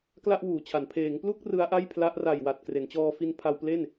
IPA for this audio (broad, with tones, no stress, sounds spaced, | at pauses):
k l a˥˩ ʔ w uː˩˦ t͡ɕʰ a˩˦ n pʰ eː˩˦ ŋ p l u˥˩ k̚ r ɯ˦˥ a̯ ʔ a˥˩ j pʰ l a˦˥ ʔ r a˨˩ j w a˨˩ t̚ k r e˩˦ n t͡ɕ ɔː˧ f i˧ n pʰ a˧ w p l e˥˩ n